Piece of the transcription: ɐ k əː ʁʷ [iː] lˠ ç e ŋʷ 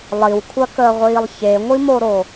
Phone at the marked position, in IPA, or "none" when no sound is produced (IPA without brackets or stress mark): iː